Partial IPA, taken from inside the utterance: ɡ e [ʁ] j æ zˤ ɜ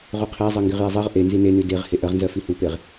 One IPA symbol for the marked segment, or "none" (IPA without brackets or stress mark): ʁ